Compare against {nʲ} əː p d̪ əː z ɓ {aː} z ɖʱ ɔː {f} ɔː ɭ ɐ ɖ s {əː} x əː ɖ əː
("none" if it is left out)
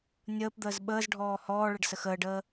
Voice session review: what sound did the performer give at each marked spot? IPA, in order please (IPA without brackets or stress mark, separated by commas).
nʲ, əː, h, ə